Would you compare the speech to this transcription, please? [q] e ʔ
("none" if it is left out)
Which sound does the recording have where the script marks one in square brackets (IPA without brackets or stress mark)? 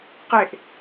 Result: q